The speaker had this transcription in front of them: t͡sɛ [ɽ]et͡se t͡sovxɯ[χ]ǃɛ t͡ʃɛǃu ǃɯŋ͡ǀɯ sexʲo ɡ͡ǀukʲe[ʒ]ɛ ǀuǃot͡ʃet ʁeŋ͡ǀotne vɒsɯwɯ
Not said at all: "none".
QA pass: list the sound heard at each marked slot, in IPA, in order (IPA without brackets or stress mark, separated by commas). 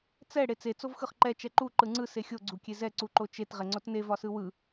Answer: ɽ, χ, z